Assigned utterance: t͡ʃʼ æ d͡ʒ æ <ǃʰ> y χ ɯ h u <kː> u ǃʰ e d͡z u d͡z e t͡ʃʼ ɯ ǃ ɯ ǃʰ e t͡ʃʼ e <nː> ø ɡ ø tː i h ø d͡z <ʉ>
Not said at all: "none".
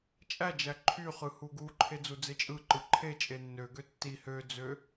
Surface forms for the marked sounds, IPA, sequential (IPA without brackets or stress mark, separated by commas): ǃʰ, ɡ, nː, ø